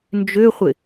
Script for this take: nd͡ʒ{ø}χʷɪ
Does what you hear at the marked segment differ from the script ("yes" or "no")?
no